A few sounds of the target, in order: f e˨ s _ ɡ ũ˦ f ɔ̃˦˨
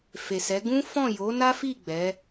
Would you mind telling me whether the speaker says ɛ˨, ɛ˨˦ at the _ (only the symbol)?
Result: ɛ˨˦